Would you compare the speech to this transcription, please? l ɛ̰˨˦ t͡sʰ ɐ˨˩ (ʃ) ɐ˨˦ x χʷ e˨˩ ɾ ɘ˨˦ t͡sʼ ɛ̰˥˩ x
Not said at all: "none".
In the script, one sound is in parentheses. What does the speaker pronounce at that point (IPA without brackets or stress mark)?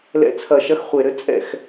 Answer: ʃ